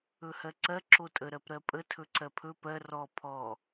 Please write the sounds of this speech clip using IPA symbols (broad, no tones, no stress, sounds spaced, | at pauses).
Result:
ɵ h ɜ ǀ ɜ ǁ o tʼ ə ɾ ɜ p ɾ ɜ pʼ ə tʰ ɵ ǀ ɜ pʰ ɵ p ɜ r ɔ pʰ ɔ